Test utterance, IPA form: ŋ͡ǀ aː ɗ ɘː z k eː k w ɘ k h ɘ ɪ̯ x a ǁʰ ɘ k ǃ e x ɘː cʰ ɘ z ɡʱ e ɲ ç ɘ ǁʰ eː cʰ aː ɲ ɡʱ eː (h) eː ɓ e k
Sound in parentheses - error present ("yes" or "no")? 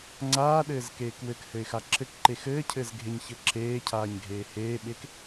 no